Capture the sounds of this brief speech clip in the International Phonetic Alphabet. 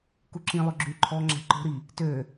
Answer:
k u ǁ ĩ lˠ ø ɡ͡ǁ y ǃʰ ɔ ŋ͡ǁ ɛ̤ ǃ o̤ ɾ i | t ø

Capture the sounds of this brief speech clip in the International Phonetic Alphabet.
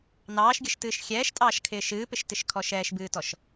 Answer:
n ɑː ʃ ɡʲ ə ʃ t ɨː ʃ xʲ ɛː ʃ tʼ ɑː ʃ kʰ ɪː ʃ ɨː p ɪ ʃ t ɪ ʃ kʰ ɔ ʃ ɛː ʃ b ɨː t ɔ ʃ

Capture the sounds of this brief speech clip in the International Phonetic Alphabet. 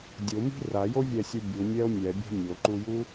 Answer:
dʲ ʊ m i̤ r a j o vʲ ɛ sʲ u bʲ u mʲ ɛ o̯ mʲ ɛ bʲ a̤ mʲ o ǃ u j u

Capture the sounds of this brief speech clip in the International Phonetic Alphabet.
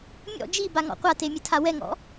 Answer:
mʲ ɔ̰ d͡ʒ i b a ŋ ɔ̰ qʷ a t e mʲ ɘ tʰ a w ɛ ŋ ɔ̰

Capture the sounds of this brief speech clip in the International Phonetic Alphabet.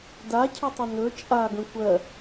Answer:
d a cʰ ə tˤ ə n ɵ t͡ʃʼ a ɡ ə̃ kʷ ɜ

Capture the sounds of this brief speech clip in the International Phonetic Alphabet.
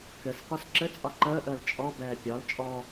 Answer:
k ɘ s k ɒ s ǁ ɘ t͡sʼ ɒ ǃ əː ʔ əː l t͡ʃʼ ɔ b ɛː pʲ ɒ l t͡ʃʼ ɔ

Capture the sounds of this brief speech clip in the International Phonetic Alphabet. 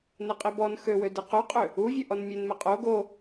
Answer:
n ɛ qʼ i b ɔ n x ø w ø d e q o qʼ ø | u vʲ ø ʔ ɔ n mʲ e n m ɛ qʼ o ɡ o

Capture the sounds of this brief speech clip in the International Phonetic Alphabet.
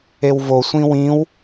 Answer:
e w v o sʷ ĩ w ĩ w

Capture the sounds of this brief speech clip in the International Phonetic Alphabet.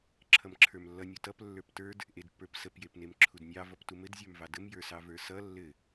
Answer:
ǁʰ ʌ m ǁʰ ə˞ m lː ʌ nʲ u t ʌ p lː ə˞ p t ə˞ d | ʔ e d pː ə˞ p s ə p j e p n e m ǁʰ u d nʲ ɑ v ʌ p t u m ɘ d zʲ ə˞ m v ɑ d ə m j ə˞ s ɑ v ə˞ s ʌ lː ɘ

